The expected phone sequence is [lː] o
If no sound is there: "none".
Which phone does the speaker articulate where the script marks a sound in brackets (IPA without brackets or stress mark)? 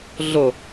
ɮ